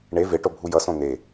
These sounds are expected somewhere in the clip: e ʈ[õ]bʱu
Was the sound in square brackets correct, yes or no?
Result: no